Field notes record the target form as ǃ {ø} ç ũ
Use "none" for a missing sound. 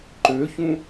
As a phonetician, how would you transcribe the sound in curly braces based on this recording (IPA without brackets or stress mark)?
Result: ø